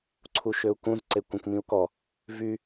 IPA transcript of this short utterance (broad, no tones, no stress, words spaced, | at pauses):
ǀʰuʃøu̯kũz ǀekʷẽkmĩu̯kɔ | vy